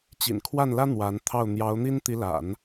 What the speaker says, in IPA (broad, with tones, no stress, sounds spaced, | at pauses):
t͡ɕ ḭ˨˩ n kʰ w a˥˩ n l ä˥ n̪ w a˧˥ n t̪ʰ ɑ˥˩ ʊ̯ n̪ j ɑ˧˥ ʊ̯ n̪ i˥ n t̪ i˧˥ l a̰˨˩˦ n